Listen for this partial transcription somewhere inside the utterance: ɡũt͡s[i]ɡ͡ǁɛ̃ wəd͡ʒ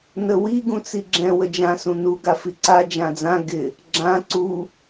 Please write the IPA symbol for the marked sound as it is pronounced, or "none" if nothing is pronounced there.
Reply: i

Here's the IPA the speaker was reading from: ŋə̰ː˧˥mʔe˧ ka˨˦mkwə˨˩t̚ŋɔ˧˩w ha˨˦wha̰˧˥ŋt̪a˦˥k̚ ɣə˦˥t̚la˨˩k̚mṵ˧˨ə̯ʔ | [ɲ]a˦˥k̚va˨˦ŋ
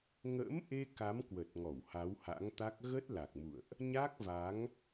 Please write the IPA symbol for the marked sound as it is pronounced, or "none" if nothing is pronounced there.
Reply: ɲ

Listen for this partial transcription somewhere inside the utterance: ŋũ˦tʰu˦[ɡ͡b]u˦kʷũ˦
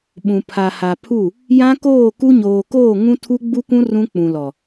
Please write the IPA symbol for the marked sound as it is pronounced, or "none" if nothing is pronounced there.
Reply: ɡ͡b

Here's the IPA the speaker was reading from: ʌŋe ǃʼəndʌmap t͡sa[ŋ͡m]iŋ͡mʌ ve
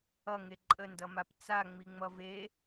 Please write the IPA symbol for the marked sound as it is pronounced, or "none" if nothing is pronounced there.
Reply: ŋ͡m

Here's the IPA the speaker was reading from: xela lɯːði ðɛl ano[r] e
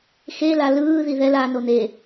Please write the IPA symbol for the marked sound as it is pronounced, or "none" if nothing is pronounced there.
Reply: n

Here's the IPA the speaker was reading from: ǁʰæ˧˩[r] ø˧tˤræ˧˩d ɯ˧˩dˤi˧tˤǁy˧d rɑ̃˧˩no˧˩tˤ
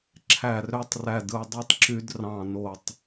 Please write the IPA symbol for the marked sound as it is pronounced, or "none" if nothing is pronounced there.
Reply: r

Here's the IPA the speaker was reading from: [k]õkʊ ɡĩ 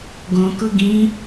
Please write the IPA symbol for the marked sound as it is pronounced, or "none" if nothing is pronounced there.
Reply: ɡ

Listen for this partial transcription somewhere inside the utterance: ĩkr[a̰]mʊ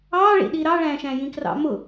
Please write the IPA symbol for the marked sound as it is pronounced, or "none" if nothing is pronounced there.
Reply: ɑ̰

